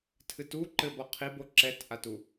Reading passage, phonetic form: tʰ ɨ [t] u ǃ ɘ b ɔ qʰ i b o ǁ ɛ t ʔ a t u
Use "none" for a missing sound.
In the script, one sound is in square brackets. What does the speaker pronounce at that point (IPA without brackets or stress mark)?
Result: t